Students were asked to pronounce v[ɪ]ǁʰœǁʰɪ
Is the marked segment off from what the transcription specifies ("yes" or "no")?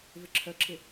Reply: no